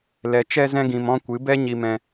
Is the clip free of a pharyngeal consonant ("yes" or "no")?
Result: yes